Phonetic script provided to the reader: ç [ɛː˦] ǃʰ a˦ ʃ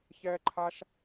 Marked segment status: correct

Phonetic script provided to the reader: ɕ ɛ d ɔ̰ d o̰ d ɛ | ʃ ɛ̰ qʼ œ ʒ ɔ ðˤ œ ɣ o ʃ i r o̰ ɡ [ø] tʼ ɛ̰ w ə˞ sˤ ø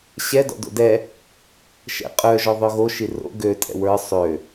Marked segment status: correct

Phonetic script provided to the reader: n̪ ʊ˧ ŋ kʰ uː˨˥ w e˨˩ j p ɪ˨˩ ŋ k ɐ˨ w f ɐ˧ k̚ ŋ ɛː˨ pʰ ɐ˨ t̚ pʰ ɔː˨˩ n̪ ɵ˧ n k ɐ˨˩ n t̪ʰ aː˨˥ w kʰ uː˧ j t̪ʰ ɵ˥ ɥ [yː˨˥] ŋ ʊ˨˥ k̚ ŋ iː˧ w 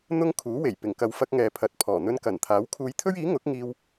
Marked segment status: incorrect: iː˨˥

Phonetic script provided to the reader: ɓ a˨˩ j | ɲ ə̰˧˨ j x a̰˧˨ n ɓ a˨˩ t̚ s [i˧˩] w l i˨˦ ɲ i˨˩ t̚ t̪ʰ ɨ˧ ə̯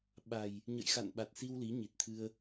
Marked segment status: incorrect: i˧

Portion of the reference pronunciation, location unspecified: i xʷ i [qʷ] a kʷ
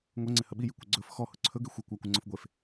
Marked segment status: incorrect: kʷ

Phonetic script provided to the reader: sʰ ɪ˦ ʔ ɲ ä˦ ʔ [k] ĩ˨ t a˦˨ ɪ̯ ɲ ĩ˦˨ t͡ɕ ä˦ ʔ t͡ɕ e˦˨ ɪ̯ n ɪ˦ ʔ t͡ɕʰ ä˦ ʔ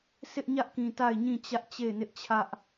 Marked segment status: correct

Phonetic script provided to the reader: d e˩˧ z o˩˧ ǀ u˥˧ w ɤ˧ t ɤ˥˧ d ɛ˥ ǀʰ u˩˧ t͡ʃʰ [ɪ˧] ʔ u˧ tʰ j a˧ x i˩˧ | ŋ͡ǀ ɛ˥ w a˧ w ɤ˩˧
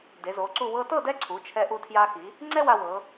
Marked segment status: incorrect: ɛ˧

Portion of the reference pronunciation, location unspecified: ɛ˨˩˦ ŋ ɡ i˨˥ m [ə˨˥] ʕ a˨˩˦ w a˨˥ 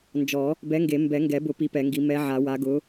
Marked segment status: incorrect: ɛ˨˥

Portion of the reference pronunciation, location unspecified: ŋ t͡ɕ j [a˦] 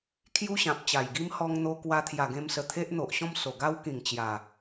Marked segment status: incorrect: a˨˩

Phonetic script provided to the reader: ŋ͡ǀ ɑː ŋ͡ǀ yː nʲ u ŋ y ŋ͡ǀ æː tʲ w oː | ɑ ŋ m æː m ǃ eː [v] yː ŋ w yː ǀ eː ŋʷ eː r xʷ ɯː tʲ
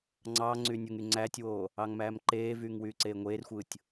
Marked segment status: correct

